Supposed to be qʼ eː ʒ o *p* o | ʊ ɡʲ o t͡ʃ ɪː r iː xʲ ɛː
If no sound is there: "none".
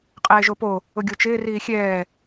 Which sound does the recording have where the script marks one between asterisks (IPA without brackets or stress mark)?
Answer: p